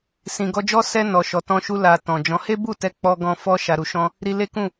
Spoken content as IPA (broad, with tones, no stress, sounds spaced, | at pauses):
s ĩ˨ ɡ ɔ˧ d͡ʒ ɔ˦ s ɛ˧ n ɔ˨ ʃ ɔ˨ t ɔ̃˧ ʃ u˧ l a˨ t ɔ̃˨ d͡ʒ ɔ̃˨˦ h e˦ b u˦˨ t ɛ˧ k͡p ɔ˦ ɡ ɔ̃˦ f ɔ˦ ʃ a˧ ɾ u˧ ʃ ɔ̃˦ | ɾ i˧ l e˦ k ũ˦˨